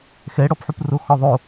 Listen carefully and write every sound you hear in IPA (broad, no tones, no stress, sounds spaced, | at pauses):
x ɛ ɽ ɔ p ħ u p r o x ɔ ðˤ o